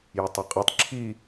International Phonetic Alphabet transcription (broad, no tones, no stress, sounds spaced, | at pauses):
j ʉ tˤ ɵ qʼ i tˤ ǁʰ i